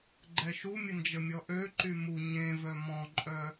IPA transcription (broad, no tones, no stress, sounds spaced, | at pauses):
ɡ͡ǃ ɛ ʃ u mʲ ə n d͡ʒ ə mʲ ɔ ʔ ø ǃ y m u ɲ ẽ v œ m ɔ̃ ǃʼ œ